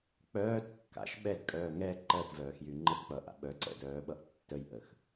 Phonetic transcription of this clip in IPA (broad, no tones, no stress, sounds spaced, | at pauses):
k͡p œː t kː a̰ ʃ ɓ ɛ d kʼ œː ŋ ɛ ǃ ɜ t v œː x j y ŋ͡ǃ ə t k͡p ʌ ʔ a̰ ɓ œ ǀ ɛ̰ d œː ɓ ʌ ʔ tː ə j ʔ ə x